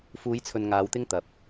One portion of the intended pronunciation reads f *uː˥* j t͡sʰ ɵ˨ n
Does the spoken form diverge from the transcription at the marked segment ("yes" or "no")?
yes